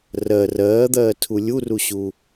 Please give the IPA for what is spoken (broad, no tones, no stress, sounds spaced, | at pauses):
r ɜ r ɜː d̪ ɜː tʰ u lʲ u r u ɕ u